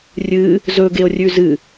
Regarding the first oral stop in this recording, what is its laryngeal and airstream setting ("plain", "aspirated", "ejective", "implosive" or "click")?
plain